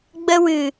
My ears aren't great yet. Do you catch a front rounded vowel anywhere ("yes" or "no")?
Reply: no